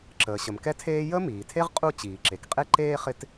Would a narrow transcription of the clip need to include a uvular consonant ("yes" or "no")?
yes